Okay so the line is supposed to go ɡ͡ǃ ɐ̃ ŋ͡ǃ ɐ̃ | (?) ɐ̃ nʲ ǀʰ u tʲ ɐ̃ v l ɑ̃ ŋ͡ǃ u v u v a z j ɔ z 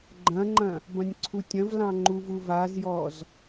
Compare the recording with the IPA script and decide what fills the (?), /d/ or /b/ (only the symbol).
b